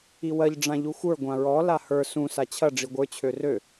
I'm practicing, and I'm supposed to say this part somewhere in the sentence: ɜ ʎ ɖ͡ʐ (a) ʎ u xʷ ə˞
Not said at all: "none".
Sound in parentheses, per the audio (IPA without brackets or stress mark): ã